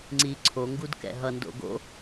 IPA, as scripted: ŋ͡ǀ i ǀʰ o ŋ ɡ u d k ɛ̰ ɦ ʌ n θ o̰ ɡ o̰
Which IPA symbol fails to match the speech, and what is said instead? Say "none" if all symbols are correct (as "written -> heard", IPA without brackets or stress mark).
θ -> d